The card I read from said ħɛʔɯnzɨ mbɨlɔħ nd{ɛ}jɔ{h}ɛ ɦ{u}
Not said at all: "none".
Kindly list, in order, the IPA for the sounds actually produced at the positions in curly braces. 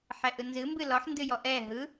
ɨ, ʔ, ɯ

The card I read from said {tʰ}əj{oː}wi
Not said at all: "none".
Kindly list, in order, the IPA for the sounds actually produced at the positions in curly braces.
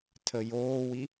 tʰ, oː

